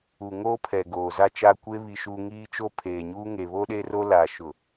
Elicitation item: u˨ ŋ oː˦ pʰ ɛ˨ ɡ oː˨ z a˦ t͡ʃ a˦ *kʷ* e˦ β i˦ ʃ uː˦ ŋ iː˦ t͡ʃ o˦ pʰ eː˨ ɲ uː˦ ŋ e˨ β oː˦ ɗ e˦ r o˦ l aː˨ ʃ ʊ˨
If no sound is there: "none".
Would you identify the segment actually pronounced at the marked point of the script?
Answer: kʷ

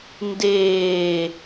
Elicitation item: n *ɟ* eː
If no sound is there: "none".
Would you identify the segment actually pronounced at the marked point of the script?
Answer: d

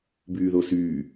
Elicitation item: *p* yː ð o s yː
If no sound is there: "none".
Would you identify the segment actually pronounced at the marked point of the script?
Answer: b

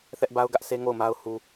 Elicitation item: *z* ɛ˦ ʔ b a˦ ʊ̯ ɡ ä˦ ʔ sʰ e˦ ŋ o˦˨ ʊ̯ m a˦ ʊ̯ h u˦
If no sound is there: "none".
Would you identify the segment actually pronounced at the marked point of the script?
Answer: θ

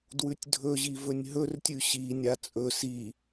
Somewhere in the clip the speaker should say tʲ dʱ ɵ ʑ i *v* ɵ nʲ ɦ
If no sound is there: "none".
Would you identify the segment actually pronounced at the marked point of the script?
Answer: v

